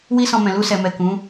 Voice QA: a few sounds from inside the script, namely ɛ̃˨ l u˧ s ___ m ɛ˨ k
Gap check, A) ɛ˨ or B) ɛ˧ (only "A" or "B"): A